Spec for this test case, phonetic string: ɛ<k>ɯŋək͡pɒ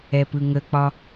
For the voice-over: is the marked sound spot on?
no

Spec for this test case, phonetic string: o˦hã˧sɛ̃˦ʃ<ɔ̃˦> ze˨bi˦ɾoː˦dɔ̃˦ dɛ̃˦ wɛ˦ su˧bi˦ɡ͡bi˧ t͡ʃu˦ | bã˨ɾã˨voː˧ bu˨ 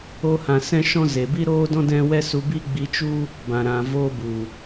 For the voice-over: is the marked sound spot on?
yes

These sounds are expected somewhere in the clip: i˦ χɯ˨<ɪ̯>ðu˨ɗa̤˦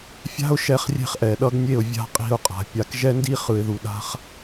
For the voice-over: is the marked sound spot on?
yes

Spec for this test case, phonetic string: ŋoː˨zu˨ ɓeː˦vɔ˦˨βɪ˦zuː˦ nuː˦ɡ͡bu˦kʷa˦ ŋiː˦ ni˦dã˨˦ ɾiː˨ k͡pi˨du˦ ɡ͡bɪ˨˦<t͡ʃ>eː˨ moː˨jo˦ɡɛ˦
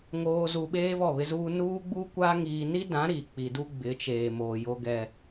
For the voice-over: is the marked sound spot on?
yes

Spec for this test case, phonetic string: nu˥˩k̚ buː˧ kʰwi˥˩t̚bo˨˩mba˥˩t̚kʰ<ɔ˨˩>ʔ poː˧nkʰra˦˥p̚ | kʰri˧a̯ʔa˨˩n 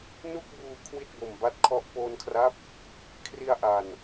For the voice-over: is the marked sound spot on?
no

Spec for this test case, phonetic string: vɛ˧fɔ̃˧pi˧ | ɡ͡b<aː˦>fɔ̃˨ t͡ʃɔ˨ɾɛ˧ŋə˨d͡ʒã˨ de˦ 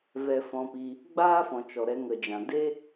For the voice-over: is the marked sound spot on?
yes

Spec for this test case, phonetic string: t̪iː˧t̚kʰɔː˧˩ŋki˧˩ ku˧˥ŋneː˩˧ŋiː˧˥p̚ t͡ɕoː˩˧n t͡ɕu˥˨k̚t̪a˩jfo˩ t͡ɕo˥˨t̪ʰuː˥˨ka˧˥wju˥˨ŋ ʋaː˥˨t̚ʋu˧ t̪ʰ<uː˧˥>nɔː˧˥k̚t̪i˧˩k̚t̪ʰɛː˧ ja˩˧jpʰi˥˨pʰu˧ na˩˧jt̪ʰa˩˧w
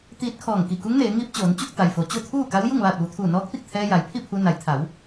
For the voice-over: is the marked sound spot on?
no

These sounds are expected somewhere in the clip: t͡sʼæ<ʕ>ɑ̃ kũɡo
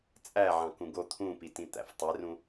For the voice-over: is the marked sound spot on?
yes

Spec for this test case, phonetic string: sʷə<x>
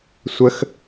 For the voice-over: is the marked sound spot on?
yes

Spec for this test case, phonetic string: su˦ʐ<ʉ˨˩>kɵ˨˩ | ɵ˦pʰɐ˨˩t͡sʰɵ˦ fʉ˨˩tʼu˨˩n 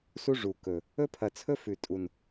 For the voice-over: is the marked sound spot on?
no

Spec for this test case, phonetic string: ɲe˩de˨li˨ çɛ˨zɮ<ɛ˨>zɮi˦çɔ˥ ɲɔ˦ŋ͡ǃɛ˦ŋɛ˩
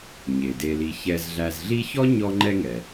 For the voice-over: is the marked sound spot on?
no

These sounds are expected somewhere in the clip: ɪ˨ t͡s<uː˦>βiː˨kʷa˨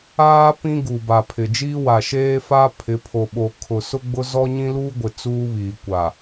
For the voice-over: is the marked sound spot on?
yes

